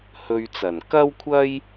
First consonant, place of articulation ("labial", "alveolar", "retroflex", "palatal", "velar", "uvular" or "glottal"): glottal